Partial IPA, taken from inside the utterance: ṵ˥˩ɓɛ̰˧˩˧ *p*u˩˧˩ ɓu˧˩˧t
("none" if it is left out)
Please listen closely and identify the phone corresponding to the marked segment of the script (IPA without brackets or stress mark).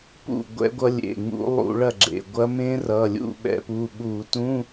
p